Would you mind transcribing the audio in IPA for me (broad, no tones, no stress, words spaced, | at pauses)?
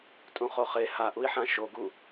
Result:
tʼũχoχe haʔui̯ħã ʃoɡu